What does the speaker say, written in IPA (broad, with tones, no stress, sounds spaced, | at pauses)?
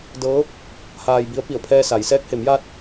d ɤː˧˥ | h aː˧ j b i˧˥ ə̯ p i˧˩ ə̯ pʰ ɛː˧ s a˩˧ j s ɛː˧˥ k̚ h e˩˧ m j aː˧ t̚